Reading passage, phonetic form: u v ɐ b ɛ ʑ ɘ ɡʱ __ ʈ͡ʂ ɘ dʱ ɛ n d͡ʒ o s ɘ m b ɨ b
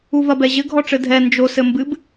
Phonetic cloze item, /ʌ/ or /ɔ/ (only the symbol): ɔ